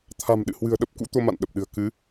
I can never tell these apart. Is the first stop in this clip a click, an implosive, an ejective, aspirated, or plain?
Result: aspirated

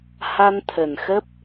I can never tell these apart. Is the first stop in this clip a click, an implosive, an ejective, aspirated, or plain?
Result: aspirated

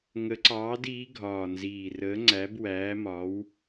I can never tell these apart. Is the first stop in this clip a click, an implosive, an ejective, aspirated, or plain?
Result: click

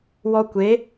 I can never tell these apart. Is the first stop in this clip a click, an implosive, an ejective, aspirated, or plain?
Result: plain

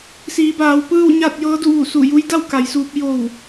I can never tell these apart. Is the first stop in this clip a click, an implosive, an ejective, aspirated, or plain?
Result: plain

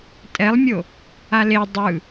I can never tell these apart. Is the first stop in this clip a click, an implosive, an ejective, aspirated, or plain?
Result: ejective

